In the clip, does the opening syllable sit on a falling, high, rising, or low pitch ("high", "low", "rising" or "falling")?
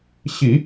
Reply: low